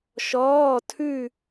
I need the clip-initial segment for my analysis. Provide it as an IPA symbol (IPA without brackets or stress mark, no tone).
ʃ